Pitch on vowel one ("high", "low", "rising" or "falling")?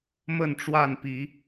falling